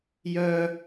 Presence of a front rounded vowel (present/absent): present